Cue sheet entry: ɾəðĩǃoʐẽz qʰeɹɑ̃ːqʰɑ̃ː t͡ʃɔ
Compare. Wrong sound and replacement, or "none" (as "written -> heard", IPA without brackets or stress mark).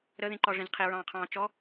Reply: o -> ɔ